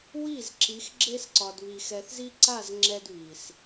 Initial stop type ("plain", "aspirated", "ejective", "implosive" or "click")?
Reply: click